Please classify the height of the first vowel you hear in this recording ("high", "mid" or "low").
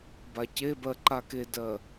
low